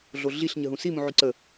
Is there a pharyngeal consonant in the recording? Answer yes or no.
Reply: yes